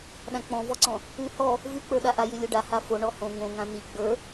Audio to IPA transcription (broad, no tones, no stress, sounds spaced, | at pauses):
ɗ ã k͡p ɔ̃ v ɔ ǀ ɔ̃ | ʉ h ɔ | v ʉ k͡p ə˞ ɗ a ʔ a j ʉ lʲ o ɖ a h a f o ɳ ɔ h õ ŋ õ ŋ ã n i ɡ͡b ə˞